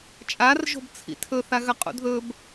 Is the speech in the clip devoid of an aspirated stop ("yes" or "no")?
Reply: no